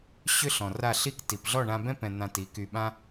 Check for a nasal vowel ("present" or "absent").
present